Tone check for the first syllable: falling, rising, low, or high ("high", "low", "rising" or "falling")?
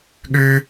high